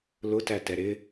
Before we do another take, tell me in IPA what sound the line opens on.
l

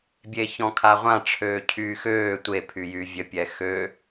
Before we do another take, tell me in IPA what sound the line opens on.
bʲ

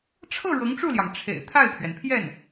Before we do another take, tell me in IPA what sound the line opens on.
ʈ͡ʂʰ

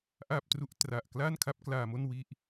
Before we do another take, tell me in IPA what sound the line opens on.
ʔ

